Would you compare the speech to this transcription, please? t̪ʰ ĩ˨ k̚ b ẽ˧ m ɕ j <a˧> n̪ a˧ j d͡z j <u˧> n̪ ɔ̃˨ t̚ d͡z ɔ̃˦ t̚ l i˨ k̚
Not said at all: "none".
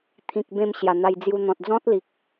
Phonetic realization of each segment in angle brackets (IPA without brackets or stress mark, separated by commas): a˨˩, u˧